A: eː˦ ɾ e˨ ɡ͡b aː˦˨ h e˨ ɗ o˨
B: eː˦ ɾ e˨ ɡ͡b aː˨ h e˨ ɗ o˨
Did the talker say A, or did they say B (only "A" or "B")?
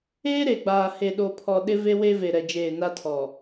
B